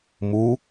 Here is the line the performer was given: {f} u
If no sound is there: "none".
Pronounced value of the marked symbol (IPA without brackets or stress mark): m